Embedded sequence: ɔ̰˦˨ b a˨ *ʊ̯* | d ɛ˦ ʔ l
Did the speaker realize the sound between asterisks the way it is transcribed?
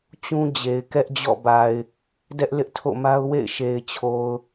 no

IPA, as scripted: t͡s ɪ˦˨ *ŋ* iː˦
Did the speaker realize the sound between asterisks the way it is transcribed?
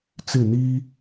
no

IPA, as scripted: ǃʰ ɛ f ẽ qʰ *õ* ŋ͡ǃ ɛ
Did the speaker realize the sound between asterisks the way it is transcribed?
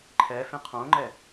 yes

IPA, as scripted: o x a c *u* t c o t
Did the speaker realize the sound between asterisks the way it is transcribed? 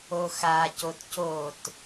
no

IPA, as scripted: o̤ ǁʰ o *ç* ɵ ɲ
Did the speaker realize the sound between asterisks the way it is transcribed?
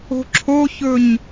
yes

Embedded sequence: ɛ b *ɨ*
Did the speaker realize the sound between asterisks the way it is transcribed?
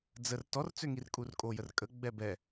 no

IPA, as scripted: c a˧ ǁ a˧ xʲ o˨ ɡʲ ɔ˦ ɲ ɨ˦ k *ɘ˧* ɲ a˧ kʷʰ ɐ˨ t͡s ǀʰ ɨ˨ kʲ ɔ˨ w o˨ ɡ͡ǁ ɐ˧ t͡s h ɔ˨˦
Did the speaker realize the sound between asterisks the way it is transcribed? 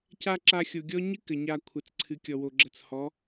no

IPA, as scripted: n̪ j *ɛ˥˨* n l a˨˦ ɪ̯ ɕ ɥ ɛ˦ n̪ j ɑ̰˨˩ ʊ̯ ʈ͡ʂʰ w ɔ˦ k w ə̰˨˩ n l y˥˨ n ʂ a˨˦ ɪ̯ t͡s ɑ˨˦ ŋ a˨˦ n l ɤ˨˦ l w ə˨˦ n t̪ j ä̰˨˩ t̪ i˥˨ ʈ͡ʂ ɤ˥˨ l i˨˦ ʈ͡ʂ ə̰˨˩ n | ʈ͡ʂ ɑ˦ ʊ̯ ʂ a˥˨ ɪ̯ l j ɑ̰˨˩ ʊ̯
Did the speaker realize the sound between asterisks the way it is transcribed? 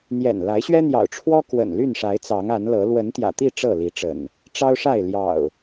no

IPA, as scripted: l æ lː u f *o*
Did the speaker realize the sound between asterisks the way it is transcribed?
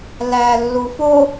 yes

